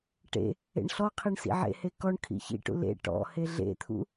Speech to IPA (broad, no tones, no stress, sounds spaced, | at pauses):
ʈ ḛ | ḛ ɳ ɬ ɔ qʰ i ɳ s ḭ ʕ ḛ h e k ɔ ɳ kʰ ḭ ç ḭ ʈ ṵ l ḛ ʈ ɔ̰ h e ɮ ḛ t̪ʰ ṵ